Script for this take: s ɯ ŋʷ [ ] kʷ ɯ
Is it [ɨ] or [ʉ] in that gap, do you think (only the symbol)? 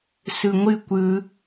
ɨ